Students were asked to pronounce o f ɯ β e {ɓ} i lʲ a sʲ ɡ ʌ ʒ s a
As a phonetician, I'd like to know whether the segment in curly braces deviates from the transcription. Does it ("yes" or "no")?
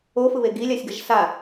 yes